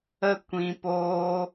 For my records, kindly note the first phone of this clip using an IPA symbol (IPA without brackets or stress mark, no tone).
ə